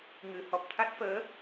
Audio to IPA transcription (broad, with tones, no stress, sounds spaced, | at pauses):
ŋ ɨ˨˩˦ h ɔ˨˩ p̚ t̪ʰ a˦˥ t̚ f əː˧˥